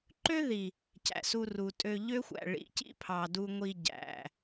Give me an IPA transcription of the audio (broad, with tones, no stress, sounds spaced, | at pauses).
ǃ ø˦ ð i˨ | c æ̰˨ s u˧ r u˨ tʼ ø˧ ʎ ø˦ xʷ æ̰˨ ɭ ḭ˨˦ c ḭ˦ pʰ ɑ˨ d u˧ ŋʷ i˧ ɟ æ̰˨